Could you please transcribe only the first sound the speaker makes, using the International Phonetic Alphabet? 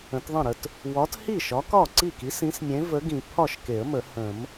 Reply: ə̃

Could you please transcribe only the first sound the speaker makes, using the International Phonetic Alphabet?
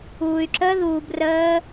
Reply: uː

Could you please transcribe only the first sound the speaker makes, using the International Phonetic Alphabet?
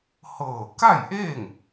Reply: h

